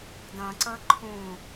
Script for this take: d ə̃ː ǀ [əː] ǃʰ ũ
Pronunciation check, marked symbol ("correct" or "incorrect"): correct